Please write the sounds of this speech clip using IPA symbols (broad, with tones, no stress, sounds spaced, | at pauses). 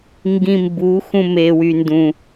ŋ ɡ ĩ˧ m b u˨˦ x ũ˧ m e˨ w y˨ n d ũ˨